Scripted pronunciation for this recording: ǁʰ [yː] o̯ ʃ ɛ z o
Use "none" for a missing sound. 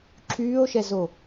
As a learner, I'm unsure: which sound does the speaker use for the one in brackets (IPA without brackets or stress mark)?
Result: yː